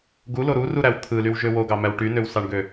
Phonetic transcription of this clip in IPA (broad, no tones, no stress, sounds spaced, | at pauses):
ɡ u l o ɾ u r u ɾ æ w t̪ʰ ɯ l y w ʒ ø w o ɡ ɑ m æ w ʈ y n ø w s ɑ ɳ ɡ ø